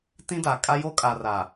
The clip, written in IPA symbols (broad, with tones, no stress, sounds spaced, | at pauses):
t ĩ˦ d a˨ kʼ a˦ j o˦ kʼ a˨ r a˨